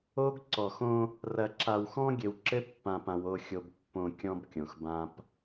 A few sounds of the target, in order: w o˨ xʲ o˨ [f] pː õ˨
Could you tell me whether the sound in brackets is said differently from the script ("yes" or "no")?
yes